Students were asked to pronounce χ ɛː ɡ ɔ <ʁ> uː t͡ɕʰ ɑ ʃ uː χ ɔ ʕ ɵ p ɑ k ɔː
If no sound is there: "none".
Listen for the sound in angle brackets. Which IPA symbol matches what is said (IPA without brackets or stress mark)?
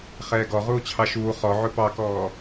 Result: ʁ